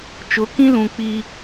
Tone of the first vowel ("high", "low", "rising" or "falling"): rising